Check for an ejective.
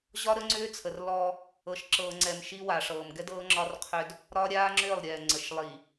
absent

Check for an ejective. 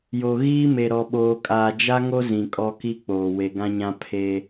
present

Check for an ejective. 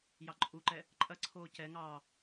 present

